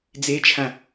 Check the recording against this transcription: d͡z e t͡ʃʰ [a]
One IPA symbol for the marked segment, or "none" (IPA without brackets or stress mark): ã